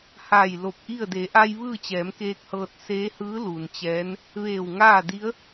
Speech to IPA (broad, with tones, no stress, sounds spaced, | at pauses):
h aː˧˩ j l o˧˩ p̚ ʔ i˥˨ ə̯ d e˩˧ ʔ a˧ j ʋ ɯː˥˨ t͡ɕ ɛː˩˧ m k eː˧ k̚ h ɤː˧ t̚ s eː˧˥ h ɯː˧˥ l uː˩ n t͡ɕ ɛː˧˥ n | ʋ eː˧˩ w ŋ aː˥˨ d i˧˥ ə̯